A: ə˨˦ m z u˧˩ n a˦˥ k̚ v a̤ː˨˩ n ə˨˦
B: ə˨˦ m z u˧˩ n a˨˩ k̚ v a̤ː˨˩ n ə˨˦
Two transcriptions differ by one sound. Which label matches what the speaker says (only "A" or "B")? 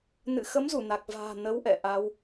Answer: B